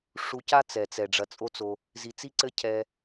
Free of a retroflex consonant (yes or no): no